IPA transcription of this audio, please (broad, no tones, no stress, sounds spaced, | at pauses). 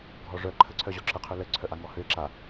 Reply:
ɡʱ ɔ ʐ œ ǃʰ ə ǀʰ œ ʑ ɔ ǁ ə qʰ ø l ə ǀʰ œ ʔ a ŋ ɔ h ø e̯ ǁ a